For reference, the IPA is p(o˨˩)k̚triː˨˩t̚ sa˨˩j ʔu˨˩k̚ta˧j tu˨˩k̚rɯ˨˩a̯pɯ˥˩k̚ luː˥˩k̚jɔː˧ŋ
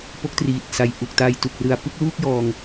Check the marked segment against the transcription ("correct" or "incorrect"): incorrect